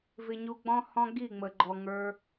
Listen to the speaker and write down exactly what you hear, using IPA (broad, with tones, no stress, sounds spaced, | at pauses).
v ɪ˧ ɲ u˧ ɡ͡b ɔ̃˦ h ɔ̃˦ ɡ i˦˨ ŋ͡m ə˨ ɡ͡ǃ ɔ˨ ŋ ə˞˧